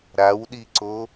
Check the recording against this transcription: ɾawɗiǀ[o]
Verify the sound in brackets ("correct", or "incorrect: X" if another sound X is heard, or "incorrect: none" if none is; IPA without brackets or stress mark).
correct